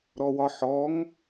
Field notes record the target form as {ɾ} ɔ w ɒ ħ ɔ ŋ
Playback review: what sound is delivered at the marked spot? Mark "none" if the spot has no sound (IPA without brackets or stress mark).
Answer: ɾ